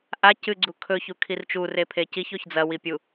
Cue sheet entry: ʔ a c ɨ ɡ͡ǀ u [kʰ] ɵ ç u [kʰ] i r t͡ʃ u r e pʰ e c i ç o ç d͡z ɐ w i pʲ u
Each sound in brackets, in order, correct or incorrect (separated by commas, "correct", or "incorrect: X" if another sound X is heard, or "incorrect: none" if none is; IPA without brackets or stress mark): correct, correct